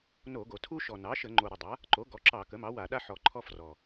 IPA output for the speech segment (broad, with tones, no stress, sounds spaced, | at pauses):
n o˧˩˧ ɡ o˨˩ tʰ u˦ ʃ ɔ˨˩ n ɑ˩˥ ʃ ə˧˩˧ ŋ͡ǃ o˨˩ ɾ ə˨˩ dˤ a˩˥ | ǃ o˩˥ ɡ ɔ˩˥ ǁ ɑ˧˩˧ k ə˩˥ m ɑ˩˥ w a˧˩˧ ɗ a˦ ħ ɔ˨˩ ǃʰ ɔ˦ f r ɔ˨˩